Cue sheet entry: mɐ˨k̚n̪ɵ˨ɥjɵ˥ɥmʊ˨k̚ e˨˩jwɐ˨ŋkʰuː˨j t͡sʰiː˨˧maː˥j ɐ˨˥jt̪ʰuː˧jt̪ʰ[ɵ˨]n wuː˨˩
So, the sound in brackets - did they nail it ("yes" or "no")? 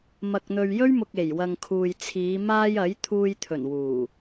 no